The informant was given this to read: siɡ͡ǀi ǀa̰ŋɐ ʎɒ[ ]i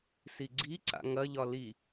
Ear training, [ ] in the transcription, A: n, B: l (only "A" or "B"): B